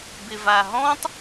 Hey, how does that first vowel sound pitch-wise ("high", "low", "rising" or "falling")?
low